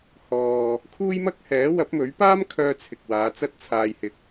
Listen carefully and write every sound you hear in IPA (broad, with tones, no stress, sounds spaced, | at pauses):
h ɔː˨ | kʰ uː˥ j m ɐ˥ k̚ h ɛː˨˥ w ɐ˨˥ p̚ m ɵ˨˥ ɥ p aː˥ m kʰ œː˧ t͡sʰ ɪ˨ k̚ w aː˨˧ t͡s ɐ˥ t̚ t͡sʰ aː˧ j h ɪ˧ k̚